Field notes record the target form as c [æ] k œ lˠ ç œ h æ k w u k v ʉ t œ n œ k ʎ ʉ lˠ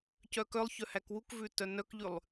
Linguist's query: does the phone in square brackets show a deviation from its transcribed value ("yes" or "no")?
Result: yes